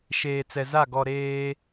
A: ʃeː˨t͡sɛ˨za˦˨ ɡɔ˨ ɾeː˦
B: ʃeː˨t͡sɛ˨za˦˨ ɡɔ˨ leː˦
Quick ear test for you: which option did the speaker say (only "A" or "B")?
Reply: A